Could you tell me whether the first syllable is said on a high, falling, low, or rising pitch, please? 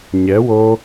rising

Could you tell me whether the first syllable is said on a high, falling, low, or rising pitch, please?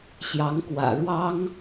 rising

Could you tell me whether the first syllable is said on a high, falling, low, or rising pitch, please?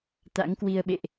rising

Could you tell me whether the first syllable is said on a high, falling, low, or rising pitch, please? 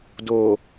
low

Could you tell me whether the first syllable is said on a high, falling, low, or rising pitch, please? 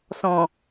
low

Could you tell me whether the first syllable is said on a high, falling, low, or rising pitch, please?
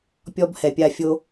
high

